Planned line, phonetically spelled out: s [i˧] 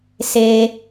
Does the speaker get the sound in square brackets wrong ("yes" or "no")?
yes